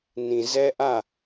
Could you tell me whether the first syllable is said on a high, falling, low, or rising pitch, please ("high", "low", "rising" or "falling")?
low